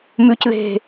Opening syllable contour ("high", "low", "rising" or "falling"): high